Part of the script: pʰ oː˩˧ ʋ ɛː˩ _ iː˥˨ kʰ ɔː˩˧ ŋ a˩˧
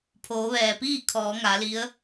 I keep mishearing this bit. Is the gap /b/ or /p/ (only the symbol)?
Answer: p